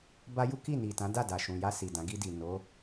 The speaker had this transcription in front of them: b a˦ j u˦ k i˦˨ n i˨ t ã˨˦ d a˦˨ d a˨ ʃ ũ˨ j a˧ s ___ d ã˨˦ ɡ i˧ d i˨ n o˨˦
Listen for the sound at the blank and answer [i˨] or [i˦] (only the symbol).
i˨